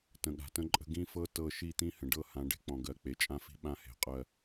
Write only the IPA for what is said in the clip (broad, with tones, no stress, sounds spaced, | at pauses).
t ə̃˨ ɠ a̤˨ t ə̃˦ ǃʼ ə̤˦ ɡ ĩ˦ f ɤ˦ t ɤ˦˨ ʃ i˦˨ t̪ ĩ˦ h ə̃˨ ɖ ɤ˦˨ h ã˨˦ ɖ e̤˦ k͡p ɔ̃˨ ɡ ɜ˨ k͡p e˨ t͡ʃʼ ã˦ f i̤˦ ɓ ã˦ h e̤˨ qʼ ɜ˨